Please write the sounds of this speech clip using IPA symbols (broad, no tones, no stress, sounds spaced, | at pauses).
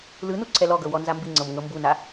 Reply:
l ɯ n u ǀʰ ɛ l ɔ ɡ ɤ w ɔ n z a m b i ŋ͡ǀ ɤ m ŋ ɤ m b u n a